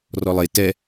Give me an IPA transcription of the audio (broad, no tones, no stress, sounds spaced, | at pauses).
r ɔ lˠ e t ɛ